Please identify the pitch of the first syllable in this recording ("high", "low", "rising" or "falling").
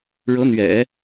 rising